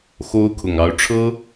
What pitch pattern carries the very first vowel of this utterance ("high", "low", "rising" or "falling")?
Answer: high